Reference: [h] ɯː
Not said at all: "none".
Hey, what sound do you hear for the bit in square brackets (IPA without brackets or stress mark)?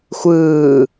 xʷ